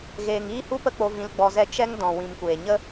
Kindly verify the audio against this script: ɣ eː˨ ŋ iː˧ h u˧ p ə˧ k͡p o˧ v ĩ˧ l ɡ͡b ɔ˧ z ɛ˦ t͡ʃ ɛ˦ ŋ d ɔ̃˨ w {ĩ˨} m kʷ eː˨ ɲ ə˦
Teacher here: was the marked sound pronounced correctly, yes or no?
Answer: yes